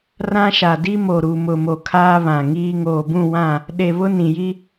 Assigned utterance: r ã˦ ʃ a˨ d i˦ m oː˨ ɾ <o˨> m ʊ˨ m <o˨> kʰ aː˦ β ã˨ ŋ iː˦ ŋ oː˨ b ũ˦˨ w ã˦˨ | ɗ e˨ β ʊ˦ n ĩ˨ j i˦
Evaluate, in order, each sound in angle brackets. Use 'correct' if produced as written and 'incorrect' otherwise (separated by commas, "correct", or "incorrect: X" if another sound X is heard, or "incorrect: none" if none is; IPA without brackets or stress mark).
incorrect: u˨, correct